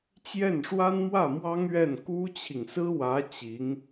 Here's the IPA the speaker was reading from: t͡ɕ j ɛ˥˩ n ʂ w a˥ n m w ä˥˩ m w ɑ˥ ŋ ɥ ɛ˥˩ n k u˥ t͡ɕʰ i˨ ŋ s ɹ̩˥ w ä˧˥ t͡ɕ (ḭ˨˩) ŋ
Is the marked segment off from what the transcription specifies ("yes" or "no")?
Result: yes